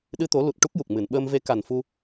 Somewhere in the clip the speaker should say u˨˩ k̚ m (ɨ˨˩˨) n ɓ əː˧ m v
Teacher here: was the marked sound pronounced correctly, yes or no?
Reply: yes